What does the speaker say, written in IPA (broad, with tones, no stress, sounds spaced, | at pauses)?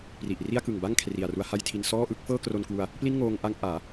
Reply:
p r i˨˩ ʔ r i˥˩ a̯ k ɯ˨˩ ŋ b a˥˩ ŋ kʰ r i˨˩ a̯ r u˦˥ a̯ h a˥˩ j tʰ i˧ n s ɔː˥˩ ʔ ɯ˥˩ k̚ f ɤː˥˩ k r o˧ n k w u˧ a̯ | p l i˥˩ n ŋ oː˧ ŋ ʔ a˦˥ ŋ ʔ aː˩˦